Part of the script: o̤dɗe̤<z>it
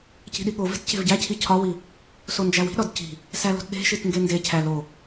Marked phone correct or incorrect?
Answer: incorrect